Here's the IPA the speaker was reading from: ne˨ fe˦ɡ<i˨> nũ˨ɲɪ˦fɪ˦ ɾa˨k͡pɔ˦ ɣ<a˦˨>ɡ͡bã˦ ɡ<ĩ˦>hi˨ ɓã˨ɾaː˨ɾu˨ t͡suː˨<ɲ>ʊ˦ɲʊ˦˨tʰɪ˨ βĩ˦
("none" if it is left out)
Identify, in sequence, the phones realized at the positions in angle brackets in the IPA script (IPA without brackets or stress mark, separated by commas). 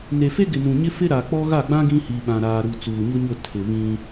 ɪ˨, a˦˨, ĩ˦, ɲ